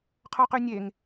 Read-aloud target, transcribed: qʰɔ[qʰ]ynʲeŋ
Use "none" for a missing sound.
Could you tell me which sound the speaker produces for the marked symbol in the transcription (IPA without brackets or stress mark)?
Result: q